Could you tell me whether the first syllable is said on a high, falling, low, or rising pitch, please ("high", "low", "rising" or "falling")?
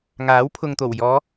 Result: rising